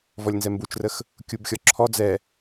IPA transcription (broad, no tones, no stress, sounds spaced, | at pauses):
v ɔ lʲ n z ɛ m b u t͡ʃ r ə x | kʲ u b xʲ ɔ ǁʰ ɔ d͡z ɛ